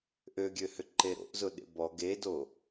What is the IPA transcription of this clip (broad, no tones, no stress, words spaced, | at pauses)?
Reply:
ʔøɡʲøhʏǃe ɾo̰ʔzʊɗḛ bɔ ɡedo